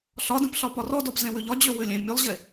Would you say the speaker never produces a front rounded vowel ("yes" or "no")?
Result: no